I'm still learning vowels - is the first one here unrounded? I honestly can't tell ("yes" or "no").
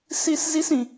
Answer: yes